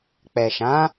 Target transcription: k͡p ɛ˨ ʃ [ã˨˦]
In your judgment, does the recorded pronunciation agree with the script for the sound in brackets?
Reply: yes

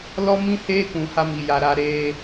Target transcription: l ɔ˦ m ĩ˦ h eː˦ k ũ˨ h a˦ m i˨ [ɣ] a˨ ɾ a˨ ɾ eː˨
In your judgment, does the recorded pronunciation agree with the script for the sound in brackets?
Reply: no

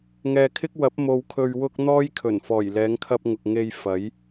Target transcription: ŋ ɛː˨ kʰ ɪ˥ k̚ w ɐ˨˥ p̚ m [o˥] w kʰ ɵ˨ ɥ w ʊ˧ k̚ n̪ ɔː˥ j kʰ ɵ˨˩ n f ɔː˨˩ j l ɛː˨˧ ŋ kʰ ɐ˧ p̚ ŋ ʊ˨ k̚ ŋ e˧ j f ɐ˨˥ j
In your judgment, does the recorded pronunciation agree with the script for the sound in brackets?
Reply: no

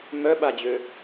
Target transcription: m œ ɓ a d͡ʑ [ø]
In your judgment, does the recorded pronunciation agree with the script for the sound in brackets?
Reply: yes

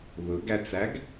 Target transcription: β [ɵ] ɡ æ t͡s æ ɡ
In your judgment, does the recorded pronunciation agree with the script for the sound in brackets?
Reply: yes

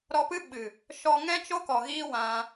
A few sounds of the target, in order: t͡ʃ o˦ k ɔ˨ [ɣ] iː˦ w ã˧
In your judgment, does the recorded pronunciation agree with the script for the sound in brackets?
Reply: yes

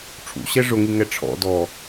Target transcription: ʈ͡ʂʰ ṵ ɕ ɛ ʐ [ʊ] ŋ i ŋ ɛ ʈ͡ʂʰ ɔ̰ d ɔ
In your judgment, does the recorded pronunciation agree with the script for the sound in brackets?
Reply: yes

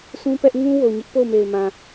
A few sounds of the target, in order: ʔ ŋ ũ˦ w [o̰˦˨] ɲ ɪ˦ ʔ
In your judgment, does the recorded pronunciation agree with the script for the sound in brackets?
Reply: no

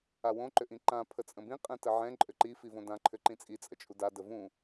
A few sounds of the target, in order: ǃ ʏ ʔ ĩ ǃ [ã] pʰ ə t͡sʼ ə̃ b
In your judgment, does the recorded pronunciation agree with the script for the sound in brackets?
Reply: yes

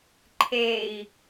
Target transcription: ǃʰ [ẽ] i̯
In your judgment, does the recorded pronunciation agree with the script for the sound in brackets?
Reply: no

